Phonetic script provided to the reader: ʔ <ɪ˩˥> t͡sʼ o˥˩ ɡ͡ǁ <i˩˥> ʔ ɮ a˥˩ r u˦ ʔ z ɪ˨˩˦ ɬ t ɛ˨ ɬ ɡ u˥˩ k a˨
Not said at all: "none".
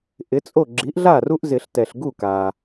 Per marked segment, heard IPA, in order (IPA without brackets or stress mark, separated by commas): ɪ˩˥, i˩˥